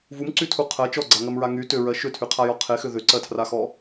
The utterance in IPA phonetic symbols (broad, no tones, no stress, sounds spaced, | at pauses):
v u m ǀ y tʰ u qʰ ɜ t͡ʃ ɔ ɡ͡ǀ a ŋ ɜ m ɹ a ŋ y t ʏ ɹ ɜ ʃ ʏ tʰ y qʰ a j ɔ qʰ e x ʏ ð ʏ ǀ ɜ tʰ r a x ɔ